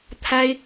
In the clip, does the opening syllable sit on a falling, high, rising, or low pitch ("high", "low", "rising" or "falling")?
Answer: high